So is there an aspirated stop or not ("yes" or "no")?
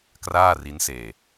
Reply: no